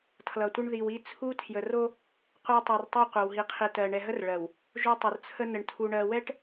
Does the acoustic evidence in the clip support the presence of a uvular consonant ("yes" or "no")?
yes